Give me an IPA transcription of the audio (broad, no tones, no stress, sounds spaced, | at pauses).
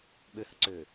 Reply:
ɓ ø h ə̰ ǀ øː